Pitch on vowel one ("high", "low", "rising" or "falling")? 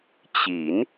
rising